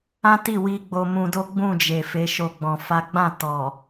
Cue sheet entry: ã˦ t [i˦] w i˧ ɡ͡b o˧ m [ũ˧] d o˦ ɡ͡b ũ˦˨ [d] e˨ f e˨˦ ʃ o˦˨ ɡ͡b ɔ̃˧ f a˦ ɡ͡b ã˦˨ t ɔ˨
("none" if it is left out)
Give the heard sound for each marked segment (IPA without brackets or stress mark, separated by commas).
i˦˨, ũ˧, d͡ʒ